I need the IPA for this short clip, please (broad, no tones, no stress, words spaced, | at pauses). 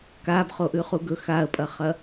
kabχoʔʉ χuɡɵ xaə̯pʼɐχɐ